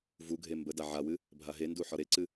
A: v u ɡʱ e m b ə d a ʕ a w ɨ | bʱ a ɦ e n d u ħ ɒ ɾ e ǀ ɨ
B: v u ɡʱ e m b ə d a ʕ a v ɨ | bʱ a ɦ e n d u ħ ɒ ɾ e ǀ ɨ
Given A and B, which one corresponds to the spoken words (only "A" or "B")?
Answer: A